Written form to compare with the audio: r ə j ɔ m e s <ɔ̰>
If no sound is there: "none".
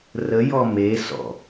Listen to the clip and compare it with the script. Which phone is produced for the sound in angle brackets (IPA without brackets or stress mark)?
ɔ̰